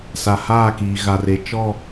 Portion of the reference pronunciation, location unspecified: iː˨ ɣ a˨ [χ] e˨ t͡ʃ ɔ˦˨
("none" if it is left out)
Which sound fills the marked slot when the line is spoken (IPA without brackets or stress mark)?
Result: r